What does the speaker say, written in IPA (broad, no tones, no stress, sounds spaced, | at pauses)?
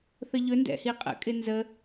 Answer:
θ ə ʎ ɵ n d ɛ̰ h i qʼ ə̰ kʼ ɪ n z ə